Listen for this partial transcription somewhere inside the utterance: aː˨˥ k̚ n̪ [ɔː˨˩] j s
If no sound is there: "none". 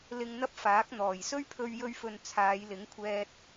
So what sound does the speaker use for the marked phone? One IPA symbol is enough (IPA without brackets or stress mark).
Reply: ɔː˨˩